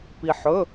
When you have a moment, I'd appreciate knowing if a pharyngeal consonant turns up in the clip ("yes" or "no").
yes